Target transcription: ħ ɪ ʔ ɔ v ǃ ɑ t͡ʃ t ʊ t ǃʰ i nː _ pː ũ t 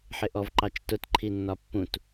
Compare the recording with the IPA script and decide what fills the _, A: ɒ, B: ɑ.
A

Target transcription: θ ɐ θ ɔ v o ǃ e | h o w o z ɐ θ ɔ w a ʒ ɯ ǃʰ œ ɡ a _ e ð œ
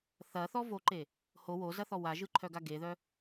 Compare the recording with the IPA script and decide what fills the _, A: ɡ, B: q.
A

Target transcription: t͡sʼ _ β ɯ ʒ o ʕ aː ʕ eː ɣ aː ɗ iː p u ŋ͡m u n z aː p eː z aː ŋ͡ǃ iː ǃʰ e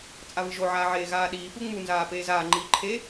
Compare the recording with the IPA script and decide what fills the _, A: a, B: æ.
A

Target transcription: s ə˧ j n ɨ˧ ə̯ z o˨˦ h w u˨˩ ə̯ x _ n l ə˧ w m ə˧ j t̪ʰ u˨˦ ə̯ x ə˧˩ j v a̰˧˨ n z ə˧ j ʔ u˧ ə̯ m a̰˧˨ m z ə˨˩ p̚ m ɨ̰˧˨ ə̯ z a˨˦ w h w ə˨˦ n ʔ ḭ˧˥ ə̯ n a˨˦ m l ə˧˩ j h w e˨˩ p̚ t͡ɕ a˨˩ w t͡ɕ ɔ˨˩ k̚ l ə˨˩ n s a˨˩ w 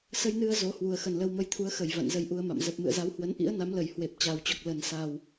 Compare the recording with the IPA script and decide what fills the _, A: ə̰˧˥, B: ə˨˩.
B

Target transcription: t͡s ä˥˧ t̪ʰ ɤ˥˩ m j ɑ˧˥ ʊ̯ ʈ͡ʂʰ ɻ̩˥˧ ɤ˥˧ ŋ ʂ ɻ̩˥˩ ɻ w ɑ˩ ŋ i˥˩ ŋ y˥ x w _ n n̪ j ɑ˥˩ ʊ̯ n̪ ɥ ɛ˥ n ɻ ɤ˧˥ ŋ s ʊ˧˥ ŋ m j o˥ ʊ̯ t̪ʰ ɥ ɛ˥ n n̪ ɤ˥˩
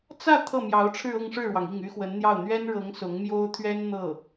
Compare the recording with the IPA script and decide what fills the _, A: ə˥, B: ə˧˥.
B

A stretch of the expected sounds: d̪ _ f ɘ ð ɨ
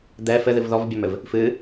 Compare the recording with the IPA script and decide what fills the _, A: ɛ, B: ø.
A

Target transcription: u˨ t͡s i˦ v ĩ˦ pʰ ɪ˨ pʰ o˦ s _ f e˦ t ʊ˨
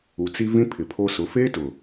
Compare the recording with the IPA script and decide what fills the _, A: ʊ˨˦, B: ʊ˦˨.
A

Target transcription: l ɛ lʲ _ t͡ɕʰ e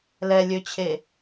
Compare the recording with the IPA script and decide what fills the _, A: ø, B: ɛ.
A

